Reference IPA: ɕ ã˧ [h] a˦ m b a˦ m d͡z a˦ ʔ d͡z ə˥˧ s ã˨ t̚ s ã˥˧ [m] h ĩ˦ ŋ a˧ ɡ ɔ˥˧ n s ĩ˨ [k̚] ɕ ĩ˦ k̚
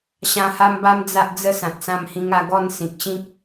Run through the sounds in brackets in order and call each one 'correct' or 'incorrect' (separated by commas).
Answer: correct, correct, correct